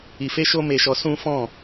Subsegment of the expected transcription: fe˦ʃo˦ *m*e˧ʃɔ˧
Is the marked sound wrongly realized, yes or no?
no